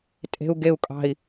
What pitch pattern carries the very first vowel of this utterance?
low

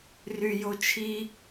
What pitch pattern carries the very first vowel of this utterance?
low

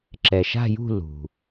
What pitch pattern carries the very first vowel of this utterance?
low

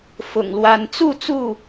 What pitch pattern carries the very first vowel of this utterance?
low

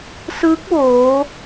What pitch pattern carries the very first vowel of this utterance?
rising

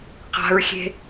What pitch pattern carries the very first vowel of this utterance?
high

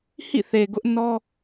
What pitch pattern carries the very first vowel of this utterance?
falling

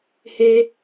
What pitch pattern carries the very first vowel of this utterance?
high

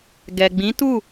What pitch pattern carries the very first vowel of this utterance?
low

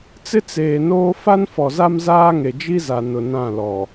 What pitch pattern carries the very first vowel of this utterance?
high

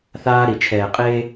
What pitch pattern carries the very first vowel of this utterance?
high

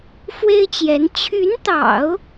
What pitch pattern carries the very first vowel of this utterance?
high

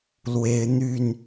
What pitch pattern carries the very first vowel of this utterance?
rising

